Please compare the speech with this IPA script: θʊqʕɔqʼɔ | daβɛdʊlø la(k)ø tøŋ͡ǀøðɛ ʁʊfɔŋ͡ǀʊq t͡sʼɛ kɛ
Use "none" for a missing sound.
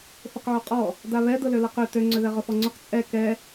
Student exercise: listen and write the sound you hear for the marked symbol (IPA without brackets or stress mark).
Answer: q